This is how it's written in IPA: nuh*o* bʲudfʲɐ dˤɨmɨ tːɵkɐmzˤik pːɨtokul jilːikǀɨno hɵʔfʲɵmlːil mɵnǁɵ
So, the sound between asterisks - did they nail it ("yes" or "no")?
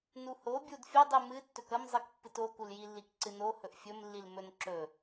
yes